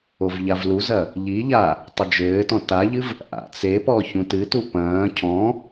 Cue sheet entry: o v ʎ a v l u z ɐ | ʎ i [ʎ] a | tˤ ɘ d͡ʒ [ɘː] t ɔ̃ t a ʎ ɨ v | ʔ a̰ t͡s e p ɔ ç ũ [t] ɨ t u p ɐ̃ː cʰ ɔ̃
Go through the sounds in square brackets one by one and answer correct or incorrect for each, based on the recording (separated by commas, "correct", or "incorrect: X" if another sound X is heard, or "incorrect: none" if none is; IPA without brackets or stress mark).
correct, correct, correct